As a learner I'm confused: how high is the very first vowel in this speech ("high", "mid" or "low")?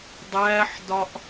low